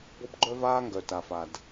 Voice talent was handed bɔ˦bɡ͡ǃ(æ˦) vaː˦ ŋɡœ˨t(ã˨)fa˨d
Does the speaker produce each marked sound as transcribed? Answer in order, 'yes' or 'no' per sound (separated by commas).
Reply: no, no